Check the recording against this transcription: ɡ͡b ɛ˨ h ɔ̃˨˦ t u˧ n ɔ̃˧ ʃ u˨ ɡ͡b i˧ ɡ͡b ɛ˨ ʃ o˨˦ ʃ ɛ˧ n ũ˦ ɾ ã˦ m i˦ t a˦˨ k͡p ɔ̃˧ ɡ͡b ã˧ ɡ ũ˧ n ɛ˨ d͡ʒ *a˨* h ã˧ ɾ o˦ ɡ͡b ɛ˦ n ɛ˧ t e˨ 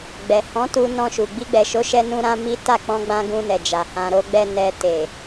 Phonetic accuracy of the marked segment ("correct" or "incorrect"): correct